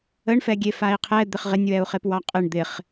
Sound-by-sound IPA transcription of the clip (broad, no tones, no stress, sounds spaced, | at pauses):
ə ɳ f ɛ ɡʲ e f a i̯ qʰ ɛ d̪ ɪ χ ʁ ɪ nʲ w ɛ u̯ χ e p w ɑ qʼ ɪ ɳ d̪ ɪ χ